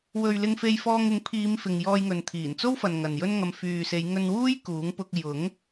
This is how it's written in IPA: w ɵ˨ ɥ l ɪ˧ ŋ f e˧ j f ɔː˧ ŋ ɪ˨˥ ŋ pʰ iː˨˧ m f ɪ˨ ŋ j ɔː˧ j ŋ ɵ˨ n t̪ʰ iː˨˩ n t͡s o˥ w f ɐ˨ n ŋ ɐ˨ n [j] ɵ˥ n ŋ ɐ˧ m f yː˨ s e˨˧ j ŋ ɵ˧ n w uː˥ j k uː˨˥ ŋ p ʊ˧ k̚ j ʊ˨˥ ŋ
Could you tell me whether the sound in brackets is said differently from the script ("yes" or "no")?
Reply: no